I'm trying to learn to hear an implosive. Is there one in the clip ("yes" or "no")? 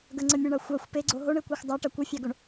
no